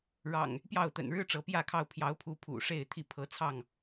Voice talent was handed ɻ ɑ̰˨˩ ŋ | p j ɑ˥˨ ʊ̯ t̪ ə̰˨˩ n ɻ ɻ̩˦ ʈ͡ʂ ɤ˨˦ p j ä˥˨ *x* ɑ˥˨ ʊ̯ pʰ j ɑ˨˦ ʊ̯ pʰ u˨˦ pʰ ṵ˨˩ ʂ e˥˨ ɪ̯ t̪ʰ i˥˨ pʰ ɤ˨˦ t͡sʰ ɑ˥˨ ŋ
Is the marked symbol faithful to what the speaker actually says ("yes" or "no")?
no